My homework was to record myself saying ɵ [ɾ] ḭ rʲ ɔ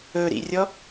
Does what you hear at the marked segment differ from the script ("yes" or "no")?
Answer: no